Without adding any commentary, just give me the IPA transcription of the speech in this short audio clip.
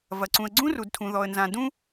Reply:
v ɐ˩ ǀ ũ˩ ə̯ ɡ͡ǀ ũ˥ r u˩ d tʰ ũ˩ ð ɔ˩ ə̯ n z ã˩ d ũ˥

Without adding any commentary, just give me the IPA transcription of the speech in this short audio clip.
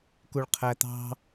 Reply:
k u ɭ qʰ æ t̪ ɑ̤

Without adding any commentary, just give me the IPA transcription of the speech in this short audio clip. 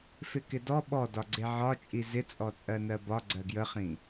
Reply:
f ɪ k ɪ d ɔ ɓ ɔ d ɒ ɡ͡ǀ e ʕ ɒ t͡ʃʼ i z ɪ t͡sʼ ɔ t͡sʼ ɜ n ɜ b ɒ ɡ͡ǀ ɜ ɡ j ə χ ĩ

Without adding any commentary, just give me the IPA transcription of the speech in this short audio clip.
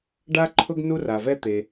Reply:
ɖ a˥ ǃʰ ʊ˥ ɡ n u˥ r a˩ v ɛ˥ t̪ e˩

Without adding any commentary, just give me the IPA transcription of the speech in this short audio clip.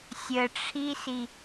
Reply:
sʲ ə ʈ͡ʂʰ i s i

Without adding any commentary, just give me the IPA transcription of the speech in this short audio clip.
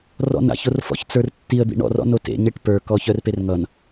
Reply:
r ɔ̰ n a̰ ç o r f ɔ̰ ç t͡s ə˞ r tː i ə̯ d̪ ḭ ɳ ɔ̰ r ɔ̰ n o t ḛ ɲ e ʈ p ə˞ k ɔ ç œ r p e r ŋ ʌ n

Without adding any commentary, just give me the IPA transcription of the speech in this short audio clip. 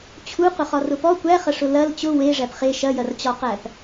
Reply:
t͡ɕʰ u q ʊ χ ɒ r ʊ p ɔ kʷ æ χ ɐ ʂ ʊ l ɐ l t͡ɕ ʊ w e ʐ æ p χ e ʃ ɐ j ɐ r t͡ɕ ɒ q æ p

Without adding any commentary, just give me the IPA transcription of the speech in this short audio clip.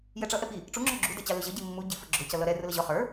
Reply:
j ɛ ʈ͡ʂ ʌ ʔ ɛ p i | ʈ͡ʂ u ŋ͡ǁ ɔ ɡ͡ǁ u d ɛ t͡ɕ ɑ l ʊ ʑ ʌ ɟ i mː u ɟ i f ə ɡ͡ǁ ʊ c ʌ l ʌ ɾ ɛ r ʊ l ə ʑ ɔ χ ə˞

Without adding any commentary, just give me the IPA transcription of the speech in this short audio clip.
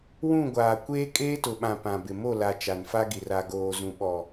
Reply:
w ũ˦˨ ɡʷ aː˨ kʷ eː˦ kʼ eː˦ t ʊ˨ ɓ ã˨ p ã˨ b ɪ˨ m o˦˨ l a˨ t͡ʃ a˨ n f a˦ ɡ i˨ r a˨ ɡ oː˨ z ũ˨ ɓ ɔ˨

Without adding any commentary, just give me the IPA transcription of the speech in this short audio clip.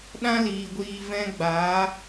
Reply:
ɗ ã˦ l iː˨ ɡʷ iː˧ v ɛ̃˦ ɡ͡b aː˨˦

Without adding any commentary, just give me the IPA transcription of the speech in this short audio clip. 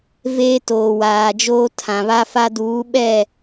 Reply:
v eː˦ t oː˨ w aː˨ d͡ʒ oː˦ tʰ ã˨ β a˦ f a˦ d uː˨˦ ɓ ɛ˦˨

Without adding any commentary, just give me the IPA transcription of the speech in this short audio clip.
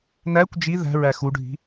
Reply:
n æ kʷ d͡ʒ i ð æ̤ ɹ æ x u ɖʱ i̤

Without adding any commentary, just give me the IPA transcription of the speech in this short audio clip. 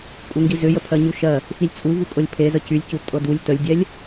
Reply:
kʼ u ŋ ɡ i z ʏ j ə pʰ ɜ ɲ u ʃ ɜ | f i lʲ t͡sʼ u v u kʼ ɤ lʲ pʰ e z ə c y lʲ c u tʼ ɤ d u lʲ t ə lʲ dʲ ɛ lʲ

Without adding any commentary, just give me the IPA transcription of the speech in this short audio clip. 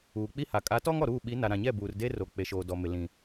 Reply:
uː˨ k͡p i˦ h a˨ kʼ a˨˦ t ɔ˦ ŋ ɔ˨ ɾ uː˦˨ ɓ i˨˦ n a˨ ɾ ã˨ ɲ ɛ˦˨ b uː˨ r d e˦ r o˨ k͡p e˨ ʃ oː˨ d ɔ˨ m ɪ˨ l ĩ˨

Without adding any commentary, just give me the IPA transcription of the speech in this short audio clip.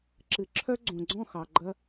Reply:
ǁ ɨ˨ ǁʰ œ˦ ɡ͡ǀ õ˨ ɡ͡ǀ ɔ̃˦˨ x ɑ˨ ɡ͡ǃ ɐ˦

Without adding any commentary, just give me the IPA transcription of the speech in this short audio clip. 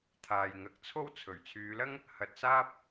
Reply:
t̪ʰ aː˨ j ŋ ɐ˨˥ k̚ t͡sʰ o˥ w t͡sʰ ɵ˨˩ ɥ t͡sʰ yː˨˧ l ɐ˥ ŋ | h ɐ˨ t̚ s aː˥ p̚

